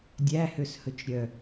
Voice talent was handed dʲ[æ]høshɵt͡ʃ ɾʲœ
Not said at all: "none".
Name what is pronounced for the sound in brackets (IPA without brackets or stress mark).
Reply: æ